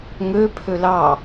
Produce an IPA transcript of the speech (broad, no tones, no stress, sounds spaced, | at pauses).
ŋ ø pʰ ø l ɑ